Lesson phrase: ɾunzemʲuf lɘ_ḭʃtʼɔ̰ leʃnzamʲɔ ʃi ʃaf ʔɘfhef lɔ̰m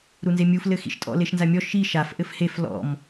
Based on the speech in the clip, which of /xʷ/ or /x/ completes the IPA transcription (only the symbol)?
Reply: x